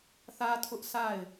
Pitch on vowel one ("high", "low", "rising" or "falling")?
high